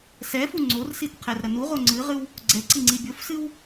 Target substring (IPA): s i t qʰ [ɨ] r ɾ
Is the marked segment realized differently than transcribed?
yes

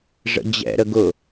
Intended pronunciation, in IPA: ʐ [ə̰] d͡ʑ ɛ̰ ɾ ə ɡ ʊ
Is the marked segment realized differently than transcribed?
no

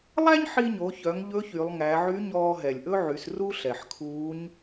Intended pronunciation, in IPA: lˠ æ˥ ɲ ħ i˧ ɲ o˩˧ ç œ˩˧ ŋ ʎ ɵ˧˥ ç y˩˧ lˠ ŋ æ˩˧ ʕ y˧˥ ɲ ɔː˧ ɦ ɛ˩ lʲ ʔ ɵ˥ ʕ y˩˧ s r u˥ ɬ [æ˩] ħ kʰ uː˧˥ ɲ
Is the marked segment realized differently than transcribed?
yes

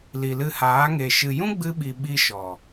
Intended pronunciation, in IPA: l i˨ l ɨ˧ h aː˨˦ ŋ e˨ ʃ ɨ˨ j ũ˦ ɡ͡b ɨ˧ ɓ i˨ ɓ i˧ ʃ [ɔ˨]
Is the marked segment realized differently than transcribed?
no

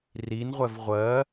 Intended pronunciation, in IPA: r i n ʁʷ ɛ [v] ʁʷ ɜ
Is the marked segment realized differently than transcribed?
no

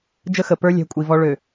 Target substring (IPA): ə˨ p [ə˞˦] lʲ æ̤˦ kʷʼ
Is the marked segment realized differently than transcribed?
no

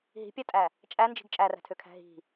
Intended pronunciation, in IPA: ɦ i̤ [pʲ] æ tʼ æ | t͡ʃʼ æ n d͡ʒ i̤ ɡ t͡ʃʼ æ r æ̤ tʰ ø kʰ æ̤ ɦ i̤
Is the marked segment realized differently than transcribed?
no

